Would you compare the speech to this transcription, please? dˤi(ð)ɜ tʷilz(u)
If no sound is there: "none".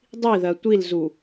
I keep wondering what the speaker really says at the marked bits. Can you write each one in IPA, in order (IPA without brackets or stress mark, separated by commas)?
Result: ð, u